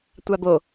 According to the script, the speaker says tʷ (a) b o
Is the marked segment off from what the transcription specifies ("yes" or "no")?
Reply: no